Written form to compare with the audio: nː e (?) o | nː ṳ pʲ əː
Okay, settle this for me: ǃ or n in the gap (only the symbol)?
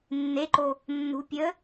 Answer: ǃ